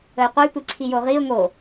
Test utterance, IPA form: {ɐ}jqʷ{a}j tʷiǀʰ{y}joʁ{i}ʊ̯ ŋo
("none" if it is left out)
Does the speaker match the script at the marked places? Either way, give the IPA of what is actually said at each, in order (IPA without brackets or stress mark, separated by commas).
ə, ə, i, i